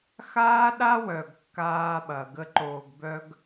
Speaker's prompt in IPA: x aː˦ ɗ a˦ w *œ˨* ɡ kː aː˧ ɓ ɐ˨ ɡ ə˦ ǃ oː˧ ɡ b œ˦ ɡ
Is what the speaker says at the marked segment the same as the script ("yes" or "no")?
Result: yes